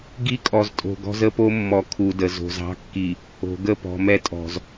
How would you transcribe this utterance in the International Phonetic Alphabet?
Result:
ɡ i˦ kʼ ɔ˨ z tʼ o̤˨ ɡ ɔ̤˦ z ə˦ p o˦ mː ɔ˨ kʰ u˨ d ə˨ z o̤˨ z ɑ̤˦ kː i˨ | o̤˨ ɡ ə˦˨ p ɔ̤˨ m ɛ˦ tʼ ɔ̤˨ z

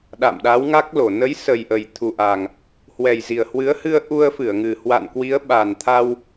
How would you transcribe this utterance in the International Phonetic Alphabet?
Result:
ɗ a̰˧˨ m ɗ a˨˦ w ŋ a˦˥ k̚ l o˧˩ n ə˨˦ j s ə˨˩ j ʔ ə˨˩ j t̪ʰ u˨˩ ʔ a˨˩ ŋ | h w ɛ˨˩ j z i˨˩ ə̯ h w ɨ˨˦ ə̯ h ɨ˧ ə̯ ʔ u˧ ə̯ f ɨ˧˩ ə̯ ŋ ɨ˨˩ h w a̰˧˨ n k w i˨˦ ə̯ ɓ a˨˩ n t̪ʰ a˧ w

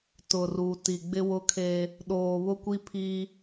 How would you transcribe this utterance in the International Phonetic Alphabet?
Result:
t ʊ˨ r u˨ t i˨ ɡ͡b ɪ˦ w ʊ˦ kʰ eː˦ | ɗ oː˨ β ʊ˦ kʷ i˦ pʰ iː˦

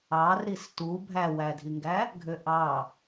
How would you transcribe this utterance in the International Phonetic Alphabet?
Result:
ɑ r ɾ i s t u bʱ æ w æ dʱ i ŋ ɡ æ | ɡʱ ø ʔ ɑ

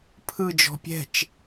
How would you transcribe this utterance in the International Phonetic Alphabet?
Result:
pʰ ɯ d͡ʒ ɔ̤ pʲ ɛ̤ t͡ʃ

